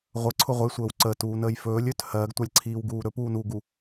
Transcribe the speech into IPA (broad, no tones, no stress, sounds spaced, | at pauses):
ʁʷ ə ǀʰ ʊ ʁʷ ə j sʷ əː w ǀ əː t uː n əː j f ɵː lʲ ɵ t h ɜː ɡ tʷ a lʲ ǀʰ iː w ɡ uː ɾ ɵ p uː n uː ɡ u